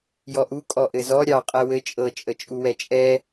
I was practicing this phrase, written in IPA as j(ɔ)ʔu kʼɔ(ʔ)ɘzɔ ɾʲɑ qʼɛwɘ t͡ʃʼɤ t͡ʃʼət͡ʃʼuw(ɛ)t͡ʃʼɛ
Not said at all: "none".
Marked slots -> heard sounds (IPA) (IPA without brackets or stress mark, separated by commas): ɔ, ʔ, ɛ